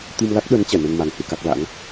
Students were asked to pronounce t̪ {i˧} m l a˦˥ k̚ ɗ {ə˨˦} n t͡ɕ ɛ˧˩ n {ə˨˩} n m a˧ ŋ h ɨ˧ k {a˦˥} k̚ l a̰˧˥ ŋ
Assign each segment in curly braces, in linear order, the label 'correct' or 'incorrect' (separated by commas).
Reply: correct, correct, incorrect, correct